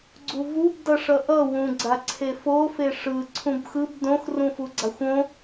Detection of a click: present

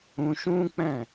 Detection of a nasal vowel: present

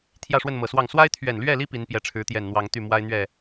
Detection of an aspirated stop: present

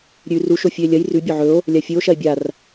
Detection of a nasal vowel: absent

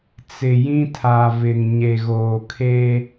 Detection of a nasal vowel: present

